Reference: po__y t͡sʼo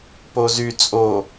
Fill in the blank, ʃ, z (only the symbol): z